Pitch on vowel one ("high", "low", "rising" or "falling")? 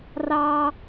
high